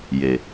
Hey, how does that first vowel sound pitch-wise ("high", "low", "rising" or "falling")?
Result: low